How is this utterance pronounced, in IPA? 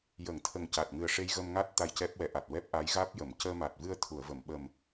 jə˨˩˦ŋt̪ʰə˨˩ŋ ca˨˩t̚ŋɨ˨˩ə̯ ʂe˧jɣə˧mŋa˦˥t̚ t̪a˧jcɛ˦˥p̚wɛ˨˩˦ʔa˨˩t̚ wɛ˦˥p̚ʔa˧˥jɣaː˦˥p̚jə˨˩˨m cəː˧ma˨˩t̚ vɨ˧ə̯ t̪ʰu˨˩˨ə̯və˨˩˨m ɓə˨˩m

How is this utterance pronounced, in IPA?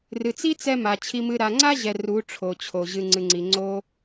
rɨ˨t͡si˦t͡sɛ˧ ma˨t͡ɕʰi˧mɨ˧ ɾa˨ŋ͡ǀa˦ʑɛ˨ ru˨˦ ʈ͡ʂʰo˨t͡ɕʰo˨ ʑɨ˨ŋ͡ǀɨ˨ŋ͡ǀi˨ ŋ͡ǀo˧

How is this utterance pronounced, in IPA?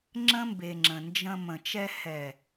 ŋ͡ǁə̃˦ mbe˨ŋ͡ǁə̃˨nd͡ʒə̃˧ mə̃˨t͡ʃɛ˧ hɛ˨

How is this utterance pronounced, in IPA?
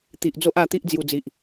t̪i˨ʔd͡zo˦ʔa˧t̪i˦ʔ d͡zju˧d͡zi˨ʔ

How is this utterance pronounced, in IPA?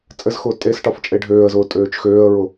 t͡sʼɘzxʊː tʼesʈɒf t͡ʃʼeɖʱøːə̯zʊː tʼøːt͡ʃxøːə̯ɹʊ

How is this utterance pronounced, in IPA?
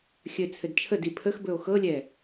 xʲɘt͡sʰɘd t͡ʃʰədi pʰəxbɵo̯ xɤlʲɛ

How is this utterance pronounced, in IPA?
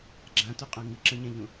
ɡ͡ǁãtuqʼã ŋɨǁɐ̃ɲɛ̃ʎũ

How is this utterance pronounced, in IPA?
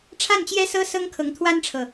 ʈ͡ʂʰa˥˩nt͡ɕjɛ˥ sɤ˥ sɤ˥ŋkʰɤ˧˥ŋt̪ʰwa˥nʈ͡ʂʰɤ˨

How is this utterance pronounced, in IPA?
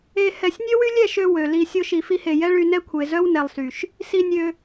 e˧ hɛ˧sʲ nʲø˦wy˦lʲɛ˦˨ʃø˧ wø˨li˧ sʲo˦ʃi˧fi˦he˧ jɛ˦ɭy˧nɛ˦ kʷʰe˨zœ˦wnɛ˨lˠsy˨ʃ | si˦nʲø˦

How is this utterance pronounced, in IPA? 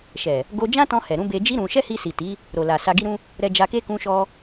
ʃɛ˨ | ɡo˧d͡ʒã˦tɔ̃˧ hɛ˨ɾũ˨˦ be˧d͡ʒi˦ ɾũ˧ ʃɛ˦hi˧si˨ti˨˦ | ɾo˨la˨ sa˧ɡi˦ɾũ˦ | ɾɛ˧d͡ʒa˧ke˦ kũ˧ʃɔ˧

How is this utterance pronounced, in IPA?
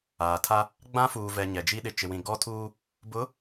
aː˨tʰa˦ | ɡ͡bã˦fuː˨vɛ˨ ɲɛ˨d͡ʒi˦ ɗɪ˨ t͡ʃɪ˨wĩ˨ ɡɔ˦tʰuː˦ | bʊ˨˦

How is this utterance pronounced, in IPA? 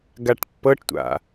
ɡaʈpːɤʈtʷa̰

